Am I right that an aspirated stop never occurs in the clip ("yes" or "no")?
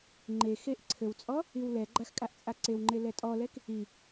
no